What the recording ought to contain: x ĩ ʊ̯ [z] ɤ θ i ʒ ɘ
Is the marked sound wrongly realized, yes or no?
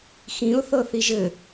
yes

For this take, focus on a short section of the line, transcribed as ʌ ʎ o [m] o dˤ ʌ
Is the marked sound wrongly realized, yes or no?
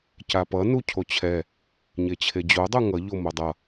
no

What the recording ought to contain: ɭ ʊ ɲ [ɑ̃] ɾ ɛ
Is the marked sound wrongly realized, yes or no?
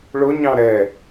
no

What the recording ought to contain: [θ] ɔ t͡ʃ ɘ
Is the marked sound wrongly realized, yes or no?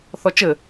no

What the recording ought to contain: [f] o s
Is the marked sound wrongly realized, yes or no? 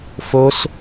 no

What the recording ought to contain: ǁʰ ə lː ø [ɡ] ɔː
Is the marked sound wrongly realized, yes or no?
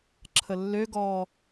no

